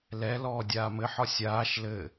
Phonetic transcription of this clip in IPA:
l ɛ l ɔː dʲ aː m ɘ ħ ɒ sʲ aː ʃ l ɘ

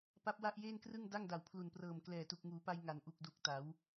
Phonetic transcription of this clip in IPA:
p a˦˥ p̚ w a˥˩ ʔ j eː˥˩ n k r ɯ˥˩ ŋ d a˥˩ ŋ d a˨˩ w pʰ l u˨˩ n p r ɤː˨˩ m k l ɛː˨˩ t u˨˩ k̚ ŋ uː˩˦ p a˧ j ŋ a˨˩ n ʔ u˨˩ k̚ d u˨˩ k̚ t a˩˦ w

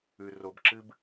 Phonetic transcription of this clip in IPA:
ʉ˨ r o˨ b ǁ ɨ˦ b

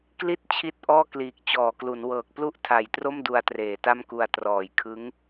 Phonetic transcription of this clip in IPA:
k l i˦˥ t̚ t͡ɕʰ i˥˩ t̚ ʔ ɔː˥˩ k l iː˨˩ k̚ t͡ɕ ɔː˩˦ k l u˩˦ n w ɤː˨˩ k̚ p l u˥˩ ʔ tʰ a˨˩ j t r o˥˩ m d u˧ a̯ t r eː˩˦ t a˥˩ m k u˧ a̯ t r ɔː˨˩ j kʰ ɯ˦˥ ŋ

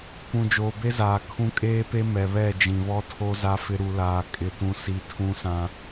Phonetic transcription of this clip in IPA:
p ũ˨ d͡ʒ oː˨ b e˦ z aː˨ kʰ ũ˦ kʼ eː˦ p e˦ m ɛ˨ β ɛ˦˨ d͡ʒ ĩ˨ β ɔ˦ tʰ o˦ z a˦ f ɪ˦ ɾ u˦ l aː˦ kʼ ɪ˦ t ũ˦ s i˦ tʰ ũ˦ s ã˦

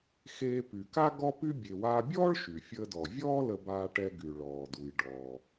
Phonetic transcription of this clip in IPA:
x eː˧ p y˩ k a˥ ɡ ɔ˥ p y˥ bʲ e˩ w aː˧ bʲ ɔː˥ ɭ ʃ y˩ fʲ əː˧ d ɔ˩ vʲ ɔː˥ l ə˧ b aː˧ ʈ ɛ˧ ɡ y˩ ɭ ɔː˩ d u˩ j ɖ ɔː˩

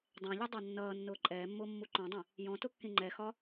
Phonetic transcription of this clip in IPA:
dˤ æ̃ ʎ u dˤ ɑ nː ʌː nː ʊː ǃʼ ɛː mː ʊː mː u ǃ ɔ̃ dˤ ɛ̃ | j ɔ̃ t ʊ kː ĩ ŋ͡ǃ ɛ x ɒ

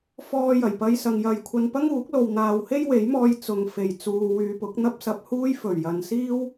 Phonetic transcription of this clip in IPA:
f ɔː˧ j ɐ˨˩ j p ɐ˧ j s ɐ˨ ŋ j ɐ˨ j kʷʰ ɐ˧ n p ɐ˥ ŋ uː˨˥ k̚ l o˨ w n̪ aː˨ w h e˥ j w e˨˥ j m ɔː˧ j t͡s ʊ˨ ŋ f e˨˩ j t͡s uː˨ w yː˨ p ʊ˨˥ k̚ n̪ ɐ˥ p̚ s ɐ˨ p̚ h uː˥ j f ɵ˨˩ ɥ j ɐ˨ n s iː˥ w

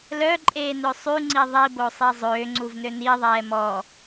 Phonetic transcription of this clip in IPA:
l œ ǃʼ eː n ø sˤ y ŋ͡ǀ i ðˤ i b o sˤ i zˤ øː ŋ͡ǀ u v n ø n i ðˤ ɛː m ɔ

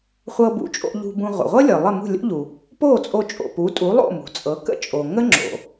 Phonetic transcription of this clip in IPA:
χʷ ɤ˧ b ṵ˩˥ t͡ʃʼ o̰˧ ʎ ṳ˧ b ũ˧ ʁʷ ə̰˩ ʁʷ ɤ˥ lʲ ɤ˩ lˠ ə˥˩ m ṳ˥˩ lʲ o̰˥ ʎ u˩ | p o˥˩ t͡sʼ o˧ t͡ʃʼ o̰˩ p u˩˥ tʼ u˩˥ lˠ o̰˥˩ m ṳ˩ t͡sʼ ɤ˩˥ k ə̰˥ t͡ʃʼ o˩ ŋ ə˥ ŋ͡ǁ o̰˩

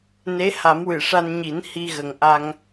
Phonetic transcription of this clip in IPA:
n e˧˥ h a˨˩˦ m w ɨ˨˩˨ ʂ a˧ n ɲ i˨˩˦ n h i˧ ɣ ə˨˩ ŋ ʔ a˧ ŋ

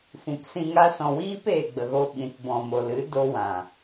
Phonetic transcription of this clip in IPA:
f ũ˨ p s ĩ˧ ŋ a˦ s ɔ̃˨ w iː˦ p eː˨ ɡ͡b ə˨ ɣ o˧ ɓ ĩ˨ t b ɔ̃˨ m o˨ l ɨ˨˦ d o˦ w ã˨

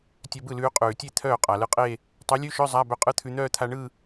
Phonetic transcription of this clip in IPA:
tʲ œ˧ b ɯ˥˩ l ʉː˧ qʼ ʉː˩ tʲ e˥˩ t̪ʰ œː˥˩ qʼ a˩ l ɯ˧ qʼ e˥˧ | tˤ œ˨˥ lʲ ʉ˧˥˧ ʃ œ˧˥˧ zˤ a˧˥˧ b œ˧ qʼ ɯ˧˥˧ t̪ʰ ʉ˧ n̪ œː˥˧ t̪ʰ a˧ ɳ ɯ˥˧

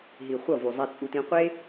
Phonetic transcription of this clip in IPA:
ɦ i˨ χʷ ʌ˦˨ v u˨ zˤ ɛ˧ t͡sʼ u˧ t ĩ˧ qʷ e˦

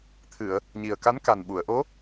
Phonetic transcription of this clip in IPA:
t̪ʰ ɨ˨˩˨ ə̯ | ɲ i˨˩ ə̯ k a˧˥ n k a˨˩ n ɓ u˨˩˨ ə̯ ʔ o˧˥

